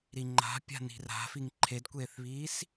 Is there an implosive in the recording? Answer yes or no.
no